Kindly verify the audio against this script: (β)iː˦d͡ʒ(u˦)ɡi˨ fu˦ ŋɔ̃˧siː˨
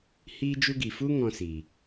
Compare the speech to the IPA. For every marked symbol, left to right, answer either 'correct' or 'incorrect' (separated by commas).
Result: incorrect, correct